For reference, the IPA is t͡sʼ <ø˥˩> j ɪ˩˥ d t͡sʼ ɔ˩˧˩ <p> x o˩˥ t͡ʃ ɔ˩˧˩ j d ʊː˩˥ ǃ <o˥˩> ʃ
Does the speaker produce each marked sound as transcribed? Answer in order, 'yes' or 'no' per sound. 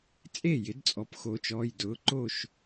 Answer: no, yes, yes

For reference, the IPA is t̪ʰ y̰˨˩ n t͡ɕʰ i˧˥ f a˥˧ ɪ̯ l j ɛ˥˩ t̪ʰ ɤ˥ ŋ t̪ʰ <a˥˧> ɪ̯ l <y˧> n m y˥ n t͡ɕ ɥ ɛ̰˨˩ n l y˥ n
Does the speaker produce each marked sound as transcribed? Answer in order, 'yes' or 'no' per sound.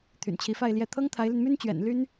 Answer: no, yes

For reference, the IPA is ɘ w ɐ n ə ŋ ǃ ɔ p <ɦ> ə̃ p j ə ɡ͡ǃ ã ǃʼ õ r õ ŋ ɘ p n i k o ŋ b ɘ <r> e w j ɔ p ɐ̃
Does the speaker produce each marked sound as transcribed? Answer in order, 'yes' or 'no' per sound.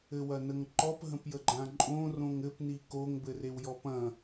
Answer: yes, yes

